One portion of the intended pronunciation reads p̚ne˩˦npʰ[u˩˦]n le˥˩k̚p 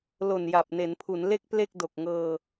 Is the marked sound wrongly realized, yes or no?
no